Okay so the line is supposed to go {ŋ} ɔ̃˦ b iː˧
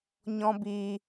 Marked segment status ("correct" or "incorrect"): incorrect